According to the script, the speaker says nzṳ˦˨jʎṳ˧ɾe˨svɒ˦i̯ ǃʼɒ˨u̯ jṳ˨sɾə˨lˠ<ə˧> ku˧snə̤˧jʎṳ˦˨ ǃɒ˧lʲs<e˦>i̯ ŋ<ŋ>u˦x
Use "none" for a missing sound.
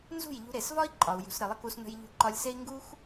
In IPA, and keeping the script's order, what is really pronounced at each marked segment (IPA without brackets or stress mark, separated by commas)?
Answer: ə˧, e˦, ɡ